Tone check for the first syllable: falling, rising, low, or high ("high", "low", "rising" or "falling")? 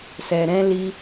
low